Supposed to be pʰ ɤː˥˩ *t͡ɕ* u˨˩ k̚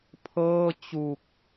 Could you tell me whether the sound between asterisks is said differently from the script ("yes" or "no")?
no